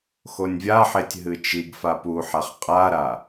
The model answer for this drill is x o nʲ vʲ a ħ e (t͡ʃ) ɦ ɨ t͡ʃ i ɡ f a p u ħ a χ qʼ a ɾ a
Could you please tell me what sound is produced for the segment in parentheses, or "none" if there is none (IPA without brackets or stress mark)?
tʲ